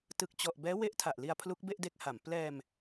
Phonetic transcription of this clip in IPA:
t ɯ˨˩ k̚ t͡ɕ ɔ˨˩ ʔ b ɛː˦˥ w e˦˥ ʔ tʰ a˨˩ ʔ l i˧ a̯ pʰ l u˦˥ k̚ b e˥˩ ʔ d e˦˥ k̚ h a˩˦ m p l ɛː˧ m

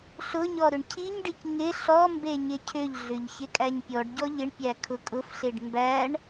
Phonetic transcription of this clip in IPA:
ɬ ʊ ɲ ɔ ɾ ʏ ɳ cʰ i ɲ ɖ i c ŋ ɪ ɬ ɔ m b e ɲ ɪ cʰ ʏ ʎ ɮ ʏ ʎ ç ɪ kʼ æ ɲ pʲ ɔ ɖ ɟ ɔ ʎ ɪ ɳ pʲ æ kʰ ʊ kʼ ʊ f ɬ e ɖ m b æ ɳ

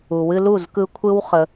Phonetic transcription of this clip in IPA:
u˨ w ɨ˧ l u˦˨ z k ɯ˧ kʷʰ ɯ˦ w χ ə˦

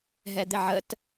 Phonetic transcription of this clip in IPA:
ɦ ɛ d̪ ɪ ʕ ə t

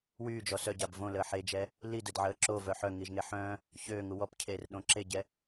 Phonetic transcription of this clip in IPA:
w yː d͡ʒ ɔ s œ ɟ a b v õ l əː ħ e d͡ʒ ɛ | l i d ə d ʕ əː ǁ o v œ ħ œ ŋ i ʒ ŋ e ħ œ̃ | ç øː ŋ u w ɔ p cʰ eː r ɗ õ ǁ e ɟ ɛ

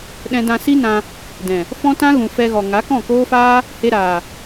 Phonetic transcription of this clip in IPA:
ɗ ɛ̃˧ d ã˧ s i˦ n ã˧ | d ɛ̃˨ | f ɔ̃˦ t ã˦ ɣ ũ˨ f ɛ˧ ɣ ɔ˨ ŋ a˨˦ k ɔ̃˦˨ k oː˦ f aː˦ | h e˧ ɾ aː˨

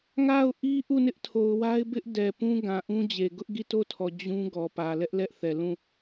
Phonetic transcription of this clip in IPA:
ŋ a˦˨ ʊ̯ ʔ i˦ ʔ u˦˨ n ɪ˦ ʔ tʰ o˨ ʊ̯ w a˦ ɪ̯ b ɪ˦ ʔ d ɛ˨ p ũ˦ ɡ ã˨ ʔ ũ˦ d͡ʑ e˨ ɡ ʊ˦ ʔ ɡ i˦˨ t o˦˨ tʰ ɔ˨ d͡ʑ ũ˦ ɡ ɔ˨ p ä˨ l ɛ˦ ʔ l ɛ˦ ʔ θ ɛ˨ l ũ˦˨

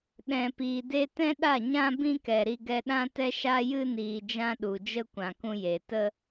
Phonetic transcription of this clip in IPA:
ɗ ɛ̃˨ p iː˨ d e˧ t ɛ̃˦ ɗ a˦˨ ɲ ã˧ b ĩ˦ k ɛ˨ ɾ i˧ ɡ ɛ˧ ɗ ã˦ t ɛ˦ ʃ a˧ j ɨ˧ n iː˨ d͡ʒ ã˧ ɗ u˨ d͡ʒ ə˧ kʷ ã˨ k ũ˧ j e˨ t ə˧

